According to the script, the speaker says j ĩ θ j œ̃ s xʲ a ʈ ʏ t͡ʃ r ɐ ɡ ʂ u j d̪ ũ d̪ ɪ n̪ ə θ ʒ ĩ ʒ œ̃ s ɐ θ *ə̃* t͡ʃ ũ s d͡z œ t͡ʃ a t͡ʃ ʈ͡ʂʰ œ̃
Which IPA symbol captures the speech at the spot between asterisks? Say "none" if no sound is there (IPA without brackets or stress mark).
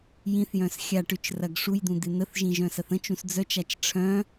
ə̃